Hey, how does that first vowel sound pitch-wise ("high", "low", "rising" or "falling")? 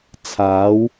rising